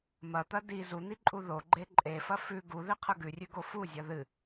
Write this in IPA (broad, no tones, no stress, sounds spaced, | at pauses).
m ɐ t̪ ɐ d i z u n̪ i ǃʼ u ð o ɡ͡ǃ e ǃʼ e f ɐ f ʉ ɡ u ð i qʰ ə ɡ ʉ rʲ ʉ ɡ o f u zʲ ɐ ð ɨ